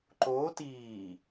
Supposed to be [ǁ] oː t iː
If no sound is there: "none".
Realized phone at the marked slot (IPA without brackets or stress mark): ǃ